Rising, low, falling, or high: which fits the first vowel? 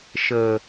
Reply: low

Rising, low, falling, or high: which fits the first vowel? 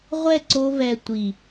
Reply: falling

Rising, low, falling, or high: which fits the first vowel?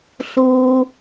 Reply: low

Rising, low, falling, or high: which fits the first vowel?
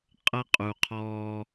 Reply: high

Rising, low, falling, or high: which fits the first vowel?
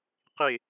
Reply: falling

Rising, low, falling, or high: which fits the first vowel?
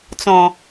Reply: low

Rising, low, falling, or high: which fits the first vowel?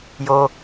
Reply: low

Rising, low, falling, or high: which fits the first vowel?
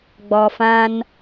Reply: low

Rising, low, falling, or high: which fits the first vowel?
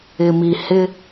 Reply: low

